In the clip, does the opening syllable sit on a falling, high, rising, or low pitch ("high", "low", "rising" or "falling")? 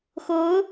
rising